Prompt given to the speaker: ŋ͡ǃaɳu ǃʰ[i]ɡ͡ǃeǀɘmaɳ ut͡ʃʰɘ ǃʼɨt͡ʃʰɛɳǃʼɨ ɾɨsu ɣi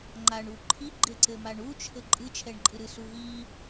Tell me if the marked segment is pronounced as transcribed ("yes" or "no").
yes